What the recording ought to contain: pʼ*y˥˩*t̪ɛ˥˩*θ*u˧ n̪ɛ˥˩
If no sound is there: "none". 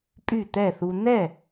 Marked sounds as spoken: y˥˩, θ

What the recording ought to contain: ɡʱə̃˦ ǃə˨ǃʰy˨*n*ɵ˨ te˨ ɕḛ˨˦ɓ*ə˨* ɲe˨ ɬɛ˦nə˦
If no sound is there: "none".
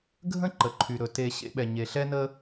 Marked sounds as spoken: ɾ, ɛ˨

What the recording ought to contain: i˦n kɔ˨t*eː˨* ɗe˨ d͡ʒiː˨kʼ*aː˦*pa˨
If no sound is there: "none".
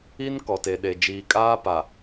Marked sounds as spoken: e˨, aː˦

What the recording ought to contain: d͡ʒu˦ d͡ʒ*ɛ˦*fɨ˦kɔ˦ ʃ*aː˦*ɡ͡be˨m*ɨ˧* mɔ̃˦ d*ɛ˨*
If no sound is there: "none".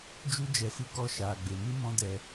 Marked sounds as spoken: ɛ˧, aː˨, ɨ˦, ɛ˧

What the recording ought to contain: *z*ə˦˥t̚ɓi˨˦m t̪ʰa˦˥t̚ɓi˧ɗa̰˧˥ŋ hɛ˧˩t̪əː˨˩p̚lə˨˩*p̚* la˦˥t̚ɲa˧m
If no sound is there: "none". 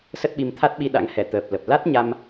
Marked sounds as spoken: s, p̚

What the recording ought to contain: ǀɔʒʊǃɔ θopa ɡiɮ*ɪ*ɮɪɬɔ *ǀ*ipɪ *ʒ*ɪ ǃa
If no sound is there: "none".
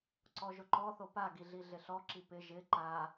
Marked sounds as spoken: i, ǁ, ʒ

